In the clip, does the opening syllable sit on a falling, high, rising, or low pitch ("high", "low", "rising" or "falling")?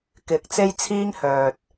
rising